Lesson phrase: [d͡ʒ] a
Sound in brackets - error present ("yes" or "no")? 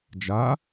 no